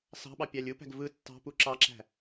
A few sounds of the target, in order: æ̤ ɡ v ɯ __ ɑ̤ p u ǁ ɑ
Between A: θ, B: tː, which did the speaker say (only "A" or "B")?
B